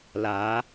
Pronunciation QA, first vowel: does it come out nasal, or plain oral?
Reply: oral